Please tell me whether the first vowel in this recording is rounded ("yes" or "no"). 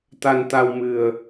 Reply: no